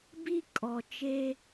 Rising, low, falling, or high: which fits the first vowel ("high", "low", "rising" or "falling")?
high